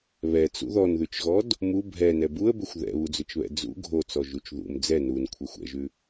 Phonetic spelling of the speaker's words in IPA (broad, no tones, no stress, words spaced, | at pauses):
βɛt͡sṵ ðɔnðʉt͡ʃɣɔd | mu bʱɛnɛ buə̯bʏxʷ ðɛ̰βud͡zʏt͡ʃβɛ̰ d͡zṵ ɡʱot͡sɔʒut͡ʃ ðṵm d͡zɛ nunkʷʰɛxʷ ɛ̰ʒʉ